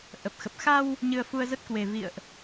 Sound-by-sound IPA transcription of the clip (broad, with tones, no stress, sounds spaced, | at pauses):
ʔ ə˨˩ p̚ x ə˨˩ p̚ x a˧ w | ɲ ɨ˧ ə̯ f u˧ ə̯ z ə˦˥ t̚ k w e˨˩ v ḭ˧˨ ə̯ ʔ